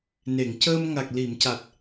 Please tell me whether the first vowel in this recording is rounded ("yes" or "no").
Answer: no